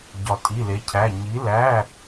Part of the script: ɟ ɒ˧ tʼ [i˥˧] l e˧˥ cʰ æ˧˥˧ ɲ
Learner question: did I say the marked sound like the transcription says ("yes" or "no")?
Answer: no